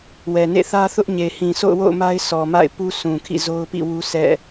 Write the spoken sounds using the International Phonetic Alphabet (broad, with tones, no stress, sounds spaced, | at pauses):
w ɛ˨ n ḛ˦˨ θ ä˦ θ ʊ˦ ʔ ɲ e˨ h ĩ˨ s o̰˦˨ ʊ̯ w o̰˦˨ ʊ̯ m a˦ ɪ̯ sʰ ɔ˨ m a̰˦˨ ɪ̯ p u˦ sʰ ũ˨ kʰ ḭ˦˨ z o˦ ʊ̯ p ḭ˦˨ w u˦ sʰ ɛ̰˦˨